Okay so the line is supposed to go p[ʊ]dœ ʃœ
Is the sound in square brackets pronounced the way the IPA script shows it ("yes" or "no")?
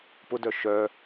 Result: yes